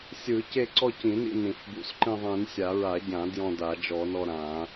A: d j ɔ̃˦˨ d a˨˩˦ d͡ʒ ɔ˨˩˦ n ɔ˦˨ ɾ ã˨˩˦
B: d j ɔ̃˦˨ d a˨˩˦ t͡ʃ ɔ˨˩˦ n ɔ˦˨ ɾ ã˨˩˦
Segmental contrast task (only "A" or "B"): A